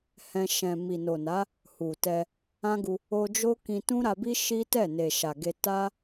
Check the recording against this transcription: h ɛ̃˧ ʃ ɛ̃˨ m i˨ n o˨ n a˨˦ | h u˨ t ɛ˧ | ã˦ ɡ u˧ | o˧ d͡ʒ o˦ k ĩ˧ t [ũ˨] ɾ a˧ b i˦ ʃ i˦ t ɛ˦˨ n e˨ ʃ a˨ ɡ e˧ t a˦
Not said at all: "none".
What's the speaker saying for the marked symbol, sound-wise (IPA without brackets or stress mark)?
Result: ũ˦